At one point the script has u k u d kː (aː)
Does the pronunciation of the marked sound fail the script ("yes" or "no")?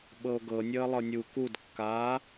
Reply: no